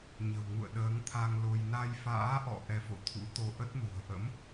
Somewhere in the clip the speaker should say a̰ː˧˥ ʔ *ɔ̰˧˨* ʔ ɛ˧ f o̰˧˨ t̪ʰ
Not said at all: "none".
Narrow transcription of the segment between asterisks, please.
ɔ̰˧˨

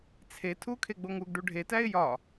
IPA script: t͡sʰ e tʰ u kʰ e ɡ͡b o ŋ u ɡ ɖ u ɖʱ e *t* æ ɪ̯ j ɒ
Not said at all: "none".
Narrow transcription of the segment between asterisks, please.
t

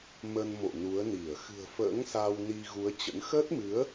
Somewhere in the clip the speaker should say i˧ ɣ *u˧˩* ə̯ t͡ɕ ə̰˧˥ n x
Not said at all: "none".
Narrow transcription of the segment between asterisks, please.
u˨˦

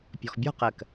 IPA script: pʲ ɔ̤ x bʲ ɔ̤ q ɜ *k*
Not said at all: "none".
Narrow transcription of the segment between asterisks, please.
k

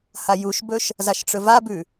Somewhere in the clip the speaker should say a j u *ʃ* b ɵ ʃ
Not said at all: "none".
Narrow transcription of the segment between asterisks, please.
ʃ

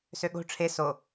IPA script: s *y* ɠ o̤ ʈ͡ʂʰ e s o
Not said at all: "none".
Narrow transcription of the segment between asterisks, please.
ø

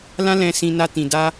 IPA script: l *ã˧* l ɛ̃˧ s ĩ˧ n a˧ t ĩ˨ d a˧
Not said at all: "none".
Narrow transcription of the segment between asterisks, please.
ã˦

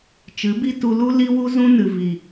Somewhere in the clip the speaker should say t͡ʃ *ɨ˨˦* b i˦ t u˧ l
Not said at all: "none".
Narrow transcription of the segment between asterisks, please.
ɨ˨˦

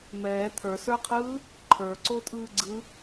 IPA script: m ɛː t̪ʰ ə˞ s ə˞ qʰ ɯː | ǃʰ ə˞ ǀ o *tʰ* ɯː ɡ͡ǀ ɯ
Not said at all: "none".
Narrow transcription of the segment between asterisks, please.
tʼ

